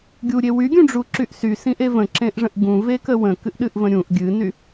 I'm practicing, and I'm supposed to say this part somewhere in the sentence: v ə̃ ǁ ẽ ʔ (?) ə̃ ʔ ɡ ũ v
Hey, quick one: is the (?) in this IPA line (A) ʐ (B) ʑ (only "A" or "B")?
A